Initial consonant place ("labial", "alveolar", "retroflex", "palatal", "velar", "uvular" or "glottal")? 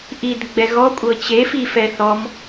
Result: glottal